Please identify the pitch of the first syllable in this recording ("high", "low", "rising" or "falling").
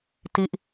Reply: falling